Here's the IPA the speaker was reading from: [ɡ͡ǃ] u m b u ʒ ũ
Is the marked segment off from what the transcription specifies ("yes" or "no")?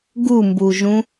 yes